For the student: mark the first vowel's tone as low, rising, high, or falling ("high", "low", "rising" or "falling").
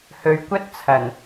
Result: low